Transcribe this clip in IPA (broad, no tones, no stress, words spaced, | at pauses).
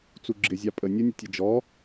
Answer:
t͡suɡ͡ǁɪzʲɑ pʼə nʲənʲʊ tʲəd͡ʒɔ